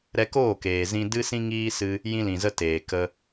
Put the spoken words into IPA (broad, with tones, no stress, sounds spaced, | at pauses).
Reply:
ɾ ɛ˧ k oː˦˨ k eː˨ z ĩ˧ d ɨ˦ s ĩ˦ ŋ iː˦ s ɨ˦ | j ĩ˧ l ĩ˨ z ə˧ t eː˨ k ə˧